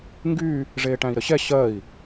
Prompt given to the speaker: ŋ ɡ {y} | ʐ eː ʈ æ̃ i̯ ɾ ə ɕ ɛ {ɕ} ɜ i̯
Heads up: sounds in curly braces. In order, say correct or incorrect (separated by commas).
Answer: correct, correct